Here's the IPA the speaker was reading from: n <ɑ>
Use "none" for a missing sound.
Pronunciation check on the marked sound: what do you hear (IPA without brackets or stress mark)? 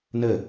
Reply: ə